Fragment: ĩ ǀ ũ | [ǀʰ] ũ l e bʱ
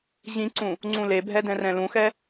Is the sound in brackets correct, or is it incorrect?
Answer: incorrect